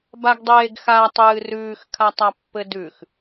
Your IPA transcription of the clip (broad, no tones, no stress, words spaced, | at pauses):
baɡdˤeːɡxa tˤɨːrʉːx kʰatˤapːɘdʉx